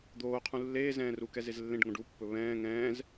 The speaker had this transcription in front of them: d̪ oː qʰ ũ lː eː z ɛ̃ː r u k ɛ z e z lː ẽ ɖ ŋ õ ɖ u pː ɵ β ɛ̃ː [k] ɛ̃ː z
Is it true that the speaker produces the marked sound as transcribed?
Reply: no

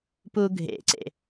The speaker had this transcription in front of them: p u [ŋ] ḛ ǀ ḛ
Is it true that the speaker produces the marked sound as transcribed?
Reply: no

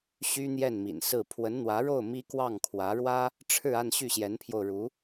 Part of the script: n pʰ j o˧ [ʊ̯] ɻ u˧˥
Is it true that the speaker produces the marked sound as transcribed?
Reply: yes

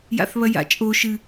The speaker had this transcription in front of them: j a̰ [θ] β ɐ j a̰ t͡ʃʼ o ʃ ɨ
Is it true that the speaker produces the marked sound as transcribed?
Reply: yes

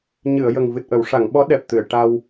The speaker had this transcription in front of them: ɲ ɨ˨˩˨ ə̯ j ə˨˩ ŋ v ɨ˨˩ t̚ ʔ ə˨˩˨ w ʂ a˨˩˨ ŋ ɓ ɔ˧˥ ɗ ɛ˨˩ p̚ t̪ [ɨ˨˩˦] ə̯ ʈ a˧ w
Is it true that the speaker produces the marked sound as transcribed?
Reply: no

